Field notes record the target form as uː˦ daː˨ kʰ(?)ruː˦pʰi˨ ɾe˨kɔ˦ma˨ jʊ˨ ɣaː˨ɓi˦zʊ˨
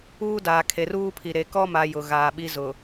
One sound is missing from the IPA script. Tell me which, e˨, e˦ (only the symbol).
e˨